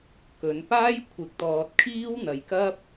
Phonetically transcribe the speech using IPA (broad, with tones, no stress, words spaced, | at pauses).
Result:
kɵ˨˧n paː˥jkʷʰɪ˨˥k̚t̪ɔː˨t̚kʰiː˥w n̪ɐ˨jkɐ˥p̚